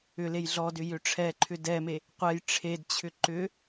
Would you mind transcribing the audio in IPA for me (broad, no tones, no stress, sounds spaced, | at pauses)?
ʏ l e j ɮ ɔ d ʏ j ʏ ʈ͡ʂʰ ɛ ǃʰ ʏ d ɛ m e | qʷ ɛ j ʈ͡ʂʰ e d t͡ɕʰ ʏ ǃ ʏ